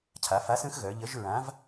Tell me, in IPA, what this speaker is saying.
cʰa˩˧fa˨˥sə̃˨˥xɣœ˩˧ ʎə˨˥ʒ ɹã˨˥v

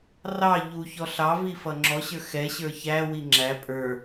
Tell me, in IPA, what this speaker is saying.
rɑ ʎuçɔ ɬɑvi fʌŋ͡ǁɔɕə˞ xɛɕə˞ çæwi ŋ͡ǁæ pʼə˞

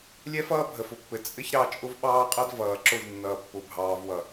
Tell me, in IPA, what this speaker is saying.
lʲɛ˦fʌː˦ bʱə˨fʊ˨pːɘ˨ t͡sʼɘ˦ç ɾɑ˦ t͡ʃʼʊ˦vɓɑː˦qʼʌ˦d vʌː˨ǁʊ˦˨v nːʌː˨pːʊ˨ bʱɑː˨vwʌ˨

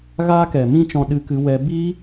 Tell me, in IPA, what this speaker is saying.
ɣaː˦kɛ˨mĩ˦t͡ʃɔ̃˧ ɗɨ˦kɨ˦wɛ˦ bi˦

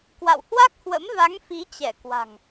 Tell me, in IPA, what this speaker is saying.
kwa̰˧˨whwa˦˥k̚hwə̰˧˥m va˨˦ŋ fi˨˦t͡ɕɛ˧˩kwa̤˨˩ŋ

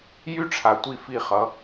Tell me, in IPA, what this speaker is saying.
jy˦ʈ͡ʂʰa˨tʷi˦˨fi˦˨ χʌ˨˦

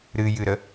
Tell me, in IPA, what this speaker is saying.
ɾɨjɨɾə

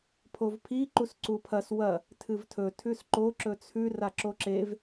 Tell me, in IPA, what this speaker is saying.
pʰovpʰi ǃusǀupʰɐs wɐ | tʰɨvtʰɵ tʰʉsǃo ǁɵt͡sʰʉ raǁoǁev

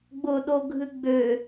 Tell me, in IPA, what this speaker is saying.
ɡ͡bʊɗoɡʱɨ ɡ͡bø

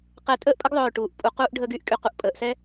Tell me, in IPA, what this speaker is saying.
qɛ˧˩tʼəː˥˧ʔ pʼə˥ɡðˤœː˧˩ʈuː˩˧ʔ pʼu˩˧quː˧ʔ ɖʱəː˧ɡy˧ʔ kʼy˧˩qu˧ʔ pʼəː˩˧ʔsɛ˥

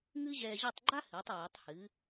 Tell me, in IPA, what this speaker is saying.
ŋɨ˥ʑɛː˧ʑɐ˥˧tˤ ɡ͡ǃa˥hɨː˩˧tˤ ɹɨ˩˧tˤhɨ˩˧

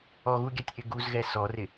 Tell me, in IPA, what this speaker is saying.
ɔɣuɡʲatʲʔɪ ɡuzɣɛ sɔrɪ

